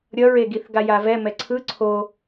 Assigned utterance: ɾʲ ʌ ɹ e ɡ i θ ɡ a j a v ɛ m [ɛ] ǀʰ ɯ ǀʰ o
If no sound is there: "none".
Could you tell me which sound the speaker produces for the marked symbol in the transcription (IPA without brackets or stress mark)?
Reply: ɛ